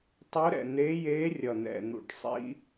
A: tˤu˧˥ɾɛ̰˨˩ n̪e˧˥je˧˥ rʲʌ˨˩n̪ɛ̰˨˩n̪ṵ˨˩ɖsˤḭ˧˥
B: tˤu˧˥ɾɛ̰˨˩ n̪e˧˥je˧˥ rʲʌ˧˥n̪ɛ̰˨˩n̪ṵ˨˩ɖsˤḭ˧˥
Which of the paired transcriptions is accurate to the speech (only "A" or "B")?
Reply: A